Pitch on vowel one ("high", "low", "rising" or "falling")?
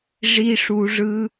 high